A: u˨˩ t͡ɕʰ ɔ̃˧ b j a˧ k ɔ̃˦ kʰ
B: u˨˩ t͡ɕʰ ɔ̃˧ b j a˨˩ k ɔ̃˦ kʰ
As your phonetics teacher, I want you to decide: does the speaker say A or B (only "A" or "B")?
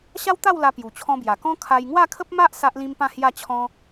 B